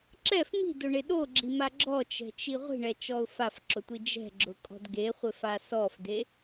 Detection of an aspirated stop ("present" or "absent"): absent